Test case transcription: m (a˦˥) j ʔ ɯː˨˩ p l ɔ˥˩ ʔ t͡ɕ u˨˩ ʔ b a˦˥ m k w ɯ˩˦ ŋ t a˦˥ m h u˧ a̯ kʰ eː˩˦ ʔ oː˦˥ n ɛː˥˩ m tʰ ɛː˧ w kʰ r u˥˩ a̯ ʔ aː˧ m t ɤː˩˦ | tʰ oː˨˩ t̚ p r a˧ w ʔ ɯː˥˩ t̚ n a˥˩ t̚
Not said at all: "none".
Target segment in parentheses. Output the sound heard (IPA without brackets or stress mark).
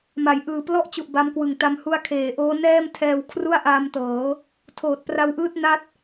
a˩˦